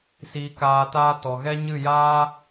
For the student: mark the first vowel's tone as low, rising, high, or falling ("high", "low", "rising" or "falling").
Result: low